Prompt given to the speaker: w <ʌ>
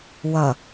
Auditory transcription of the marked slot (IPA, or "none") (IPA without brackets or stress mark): ʌ